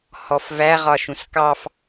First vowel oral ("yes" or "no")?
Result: yes